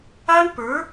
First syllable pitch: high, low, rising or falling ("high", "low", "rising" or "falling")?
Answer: high